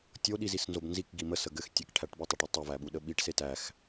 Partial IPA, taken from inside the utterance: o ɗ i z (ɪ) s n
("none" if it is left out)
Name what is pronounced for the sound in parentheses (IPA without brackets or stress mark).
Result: i